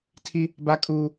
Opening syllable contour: high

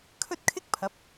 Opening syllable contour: high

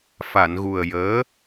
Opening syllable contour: low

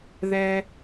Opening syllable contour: low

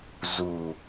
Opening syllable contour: low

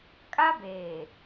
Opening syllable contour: high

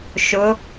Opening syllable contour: rising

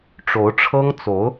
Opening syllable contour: rising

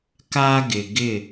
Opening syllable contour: high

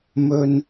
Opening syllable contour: low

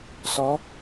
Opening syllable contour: rising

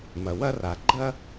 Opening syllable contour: low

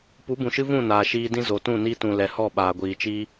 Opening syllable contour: rising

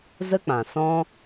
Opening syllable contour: high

